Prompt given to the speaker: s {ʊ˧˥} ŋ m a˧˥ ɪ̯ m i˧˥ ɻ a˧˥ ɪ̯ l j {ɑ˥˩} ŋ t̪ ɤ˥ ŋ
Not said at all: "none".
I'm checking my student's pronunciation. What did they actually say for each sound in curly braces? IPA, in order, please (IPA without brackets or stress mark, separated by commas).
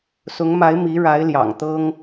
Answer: ʊ˧˥, ɑ̰˨˩